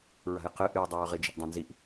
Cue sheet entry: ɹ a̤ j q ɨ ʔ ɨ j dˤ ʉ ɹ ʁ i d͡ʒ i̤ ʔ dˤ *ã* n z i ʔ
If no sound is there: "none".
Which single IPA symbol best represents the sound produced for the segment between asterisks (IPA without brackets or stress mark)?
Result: ã